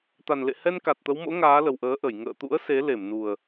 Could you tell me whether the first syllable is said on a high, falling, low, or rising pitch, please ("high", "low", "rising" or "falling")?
low